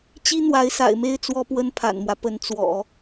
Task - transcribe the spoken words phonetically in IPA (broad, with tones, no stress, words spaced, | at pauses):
t͡ɕi˥ n̪wa˧˥ɪ̯sa̰˨˩ɪ̯me˥˩ɪ̯ t͡swɔ˥pwə˥npʰa̰˨˩nmwä˦ pə˧˥nt͡swɔ̰˨˩˦